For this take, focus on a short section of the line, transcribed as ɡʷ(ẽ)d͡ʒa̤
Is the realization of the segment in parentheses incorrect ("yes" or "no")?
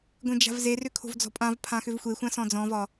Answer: no